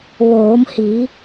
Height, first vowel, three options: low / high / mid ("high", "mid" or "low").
mid